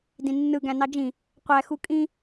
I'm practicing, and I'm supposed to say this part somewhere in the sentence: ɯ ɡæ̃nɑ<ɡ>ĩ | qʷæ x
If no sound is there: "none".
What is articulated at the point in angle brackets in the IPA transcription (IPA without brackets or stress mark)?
d͡ʒ